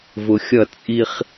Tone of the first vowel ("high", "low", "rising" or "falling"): low